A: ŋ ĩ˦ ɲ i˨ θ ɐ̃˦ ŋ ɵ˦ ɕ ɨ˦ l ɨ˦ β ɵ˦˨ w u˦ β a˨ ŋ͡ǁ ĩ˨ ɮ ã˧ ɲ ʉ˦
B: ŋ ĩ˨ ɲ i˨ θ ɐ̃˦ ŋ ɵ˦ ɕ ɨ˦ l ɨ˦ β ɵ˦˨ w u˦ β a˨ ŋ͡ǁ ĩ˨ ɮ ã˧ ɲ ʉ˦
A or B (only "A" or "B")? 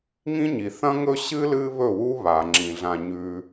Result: A